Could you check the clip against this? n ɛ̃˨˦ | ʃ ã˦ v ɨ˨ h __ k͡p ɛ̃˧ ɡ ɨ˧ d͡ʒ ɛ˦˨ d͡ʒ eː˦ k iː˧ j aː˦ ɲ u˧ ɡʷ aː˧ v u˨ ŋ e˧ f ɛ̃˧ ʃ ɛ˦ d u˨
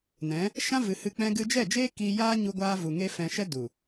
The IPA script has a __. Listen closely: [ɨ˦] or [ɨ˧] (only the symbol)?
ɨ˧